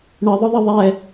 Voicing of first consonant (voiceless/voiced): voiced